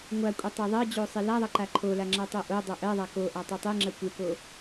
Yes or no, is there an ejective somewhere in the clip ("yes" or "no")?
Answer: yes